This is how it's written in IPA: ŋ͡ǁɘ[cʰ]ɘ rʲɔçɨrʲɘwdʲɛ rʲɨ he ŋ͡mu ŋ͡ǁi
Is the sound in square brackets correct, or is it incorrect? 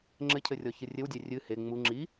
correct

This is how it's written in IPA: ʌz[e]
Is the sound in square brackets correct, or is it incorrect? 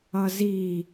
incorrect: i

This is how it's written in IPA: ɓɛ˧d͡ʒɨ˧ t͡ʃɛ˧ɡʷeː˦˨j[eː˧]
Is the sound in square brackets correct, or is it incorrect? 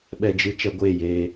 correct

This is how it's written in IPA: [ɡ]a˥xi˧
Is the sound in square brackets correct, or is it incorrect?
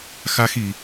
incorrect: x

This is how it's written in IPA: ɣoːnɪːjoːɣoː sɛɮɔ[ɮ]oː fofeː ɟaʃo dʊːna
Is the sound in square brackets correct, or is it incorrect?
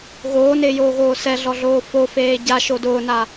correct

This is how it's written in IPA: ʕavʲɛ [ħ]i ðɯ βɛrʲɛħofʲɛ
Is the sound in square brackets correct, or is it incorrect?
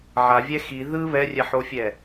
incorrect: x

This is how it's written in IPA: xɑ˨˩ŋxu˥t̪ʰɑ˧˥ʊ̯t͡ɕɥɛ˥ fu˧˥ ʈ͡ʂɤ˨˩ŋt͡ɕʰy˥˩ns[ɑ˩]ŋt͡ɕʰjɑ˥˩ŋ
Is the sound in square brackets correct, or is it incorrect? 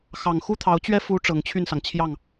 correct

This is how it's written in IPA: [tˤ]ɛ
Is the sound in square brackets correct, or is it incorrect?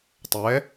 correct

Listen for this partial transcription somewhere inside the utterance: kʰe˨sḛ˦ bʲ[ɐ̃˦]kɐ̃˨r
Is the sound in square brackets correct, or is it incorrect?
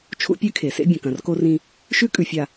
incorrect: ɐ̃˨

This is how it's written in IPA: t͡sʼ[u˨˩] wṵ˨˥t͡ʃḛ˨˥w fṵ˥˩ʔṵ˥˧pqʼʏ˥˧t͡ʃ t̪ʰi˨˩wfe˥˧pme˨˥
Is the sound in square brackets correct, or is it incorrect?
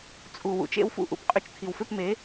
correct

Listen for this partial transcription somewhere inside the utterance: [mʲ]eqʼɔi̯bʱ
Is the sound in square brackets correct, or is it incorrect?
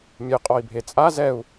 correct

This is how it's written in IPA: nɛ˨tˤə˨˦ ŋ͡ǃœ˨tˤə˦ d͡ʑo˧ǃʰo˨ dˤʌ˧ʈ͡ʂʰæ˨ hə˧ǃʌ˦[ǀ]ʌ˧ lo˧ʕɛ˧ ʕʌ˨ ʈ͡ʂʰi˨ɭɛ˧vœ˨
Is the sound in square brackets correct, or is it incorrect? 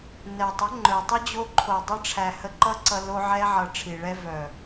correct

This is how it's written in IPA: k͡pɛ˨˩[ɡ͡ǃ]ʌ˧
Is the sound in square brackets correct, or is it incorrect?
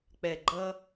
correct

